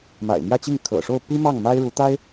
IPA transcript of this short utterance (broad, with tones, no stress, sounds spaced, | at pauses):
m a̰˨˩ ɪ̯ m j ä˥˧ t͡ɕ i˥˩ ŋ kʰ ɤ̰˨˩ ʂ o˥˩ ʊ̯ p i˥ m ɑ˥˩ ŋ m a˥ ɪ̯ ɻ u˧˥ t̪ a˥ ɪ̯